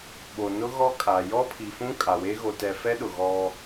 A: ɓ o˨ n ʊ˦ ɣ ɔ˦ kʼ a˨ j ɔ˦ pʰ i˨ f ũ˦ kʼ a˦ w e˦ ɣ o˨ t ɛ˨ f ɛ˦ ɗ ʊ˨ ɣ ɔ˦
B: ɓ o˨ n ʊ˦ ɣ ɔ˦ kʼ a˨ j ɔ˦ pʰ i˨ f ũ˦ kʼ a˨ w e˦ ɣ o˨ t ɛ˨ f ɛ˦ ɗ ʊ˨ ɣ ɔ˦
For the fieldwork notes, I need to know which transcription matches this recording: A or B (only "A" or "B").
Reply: B